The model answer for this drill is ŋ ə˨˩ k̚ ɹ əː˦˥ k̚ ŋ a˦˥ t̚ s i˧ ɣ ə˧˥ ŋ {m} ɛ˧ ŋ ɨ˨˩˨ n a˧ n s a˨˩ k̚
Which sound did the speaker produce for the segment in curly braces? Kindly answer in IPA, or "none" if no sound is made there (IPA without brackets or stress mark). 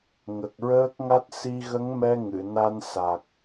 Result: m